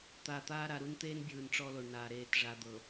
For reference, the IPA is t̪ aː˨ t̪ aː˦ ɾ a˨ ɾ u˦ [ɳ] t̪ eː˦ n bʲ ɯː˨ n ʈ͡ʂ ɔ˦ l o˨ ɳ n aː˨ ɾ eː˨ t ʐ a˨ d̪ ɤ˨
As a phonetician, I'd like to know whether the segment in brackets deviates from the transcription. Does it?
yes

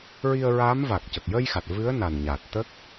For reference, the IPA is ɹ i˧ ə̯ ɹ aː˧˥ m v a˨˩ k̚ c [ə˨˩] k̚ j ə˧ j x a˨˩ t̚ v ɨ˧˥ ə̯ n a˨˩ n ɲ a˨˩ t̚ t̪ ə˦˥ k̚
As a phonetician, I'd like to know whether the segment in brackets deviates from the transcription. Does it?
no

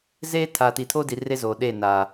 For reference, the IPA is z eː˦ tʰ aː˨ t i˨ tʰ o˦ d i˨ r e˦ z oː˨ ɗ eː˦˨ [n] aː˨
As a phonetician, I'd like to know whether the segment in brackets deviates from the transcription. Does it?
no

